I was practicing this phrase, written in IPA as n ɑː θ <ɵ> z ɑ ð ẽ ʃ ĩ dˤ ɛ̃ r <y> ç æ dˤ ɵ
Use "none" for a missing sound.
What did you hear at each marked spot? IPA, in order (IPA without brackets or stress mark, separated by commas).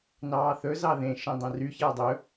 ɵ, y